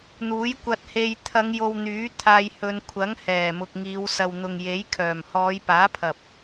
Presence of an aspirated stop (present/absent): present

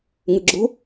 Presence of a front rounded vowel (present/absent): absent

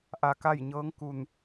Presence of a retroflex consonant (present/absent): absent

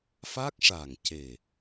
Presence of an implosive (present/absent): absent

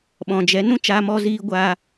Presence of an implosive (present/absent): present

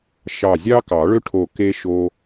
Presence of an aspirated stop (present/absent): present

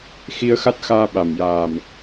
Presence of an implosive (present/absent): present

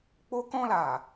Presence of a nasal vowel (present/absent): present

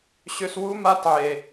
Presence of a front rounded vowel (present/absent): present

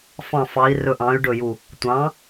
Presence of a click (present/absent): absent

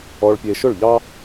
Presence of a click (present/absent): absent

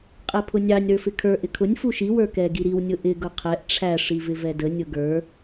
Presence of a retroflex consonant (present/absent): present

